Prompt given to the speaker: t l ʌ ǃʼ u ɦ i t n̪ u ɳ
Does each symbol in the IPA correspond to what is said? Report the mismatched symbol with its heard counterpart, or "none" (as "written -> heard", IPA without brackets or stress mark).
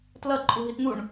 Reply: none